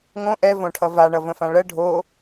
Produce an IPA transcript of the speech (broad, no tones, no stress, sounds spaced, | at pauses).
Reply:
ŋ õ ʔ ɛ v õ ʈʰ ʌ v a ɳ ʌ v ə̃ f ã ɭ ɜ ɖʱ o